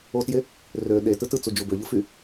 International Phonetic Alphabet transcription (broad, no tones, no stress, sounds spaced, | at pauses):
o t j e | r ø ɗ e t ɯ t ɯ t͡s u d͡ʒ o b ø ʎ ɯ f y